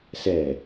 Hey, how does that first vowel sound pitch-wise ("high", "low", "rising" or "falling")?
low